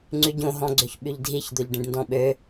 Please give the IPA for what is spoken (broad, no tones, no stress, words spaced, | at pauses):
ŋ͡ǀyɟõɦɔ̃ ɡ͡ǀøçɓyʎdʱiçd̪oʎ ɖĩɖndɔ̃ɓø